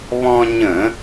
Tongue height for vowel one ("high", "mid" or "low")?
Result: mid